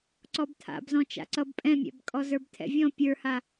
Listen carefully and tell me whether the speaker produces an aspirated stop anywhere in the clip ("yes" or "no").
yes